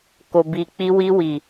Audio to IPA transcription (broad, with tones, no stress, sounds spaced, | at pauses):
k o˨ b i˨ k͡p i˧ w i˧ w i˨